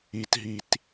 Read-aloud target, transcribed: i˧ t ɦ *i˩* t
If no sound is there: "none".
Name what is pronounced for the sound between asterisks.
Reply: i˧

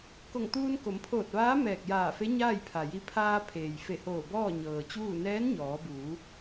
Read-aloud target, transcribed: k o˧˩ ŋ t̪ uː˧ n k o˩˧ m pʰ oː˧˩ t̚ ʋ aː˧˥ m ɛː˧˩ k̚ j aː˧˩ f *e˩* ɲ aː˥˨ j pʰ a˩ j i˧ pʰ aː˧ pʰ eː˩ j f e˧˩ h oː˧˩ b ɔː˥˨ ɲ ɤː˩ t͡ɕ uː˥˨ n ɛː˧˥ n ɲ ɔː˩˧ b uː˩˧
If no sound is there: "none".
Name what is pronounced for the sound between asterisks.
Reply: e˧˥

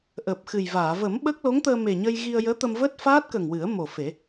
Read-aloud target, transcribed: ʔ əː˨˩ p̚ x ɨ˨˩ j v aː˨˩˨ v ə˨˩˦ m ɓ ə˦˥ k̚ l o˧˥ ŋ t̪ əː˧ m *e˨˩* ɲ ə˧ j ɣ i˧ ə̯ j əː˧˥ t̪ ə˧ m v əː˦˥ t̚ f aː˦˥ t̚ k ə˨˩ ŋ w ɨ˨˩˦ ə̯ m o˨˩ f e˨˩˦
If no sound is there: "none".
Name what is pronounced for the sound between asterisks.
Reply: e˨˩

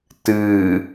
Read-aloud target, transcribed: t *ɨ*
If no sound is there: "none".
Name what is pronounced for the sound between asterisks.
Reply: ɨ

